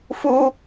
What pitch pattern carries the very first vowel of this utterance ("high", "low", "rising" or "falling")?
high